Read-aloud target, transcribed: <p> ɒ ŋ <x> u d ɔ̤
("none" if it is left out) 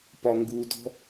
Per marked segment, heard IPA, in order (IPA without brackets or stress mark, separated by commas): p, ɡ